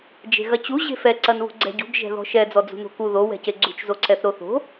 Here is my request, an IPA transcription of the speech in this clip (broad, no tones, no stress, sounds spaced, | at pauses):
d͡ʒ e̤ ɣ ɐ t͡ɕ u ʑ e̤ f ɛ ǀ ɐ n β ṳ ɡ͡ǀ ɛ̤ ɟ ṳ ɡ ʒ ɛ̤ ð ɔ̤ ʃ ɛ d͡z ɔ d͡z ṳ n o̤ k u ð o w ɛ̤ c e ɡ͡ǀ ṳ t͡ʃ z o ǀ ɛ θ ɾ o θ o̤